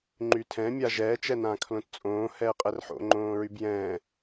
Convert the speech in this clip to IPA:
ŋ͡ǃytʰɛ̃ mʲaʒɛː t͡ʃɛnãːkʰlõtt͡sʼõː hɛːqʼɛrħo̰ ŋ͡ǃõːɹybjɛ̃ː

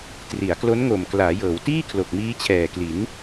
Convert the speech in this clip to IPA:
tri˩˦a̯klo˦˥nŋo˨˩m klaː˩˦jɤː˩˦w tiː˥˩ kʰlo˨˩k̚miː˦˥t͡ɕʰɛː˨˩kli˩˦n

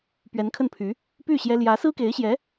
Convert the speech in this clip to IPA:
pɥɛ˧˥nkʰə˥˩npʰy˧˥ | py˥˩ ɕjɛ˥ ljä˧˥sɹ̩˥ke˧˥ɪ̯ɕjɛ˧˥

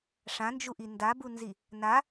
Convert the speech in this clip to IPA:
ʂãnd͡ʒuʔi ndabunzi | na

